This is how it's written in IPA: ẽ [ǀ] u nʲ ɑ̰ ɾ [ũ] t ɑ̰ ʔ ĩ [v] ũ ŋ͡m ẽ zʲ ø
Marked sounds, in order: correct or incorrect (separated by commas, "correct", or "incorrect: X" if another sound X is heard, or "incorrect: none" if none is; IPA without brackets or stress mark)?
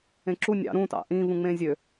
incorrect: ǁ, correct, correct